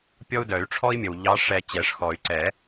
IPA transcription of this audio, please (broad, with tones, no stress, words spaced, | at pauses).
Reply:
pʲɔ˦u̯dœ˨˩˦y̯ʈ͡ʂʰɔ˦i̯mʲə˨w ʎɑ˨˦ʂɛ˨˩˦ t͡ɕɛ˨˩˦ʂxɔ˨˩˦y̯ǀɛ˨˩˦